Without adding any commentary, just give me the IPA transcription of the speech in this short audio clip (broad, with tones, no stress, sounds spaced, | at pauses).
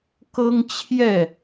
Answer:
k ɤ˦ ŋ t͡ɕʰ j ɛ˥˨